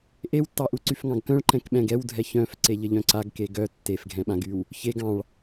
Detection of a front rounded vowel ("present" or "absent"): present